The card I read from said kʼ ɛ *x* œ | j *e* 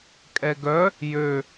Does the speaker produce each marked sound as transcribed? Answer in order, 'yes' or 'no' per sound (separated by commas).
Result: no, no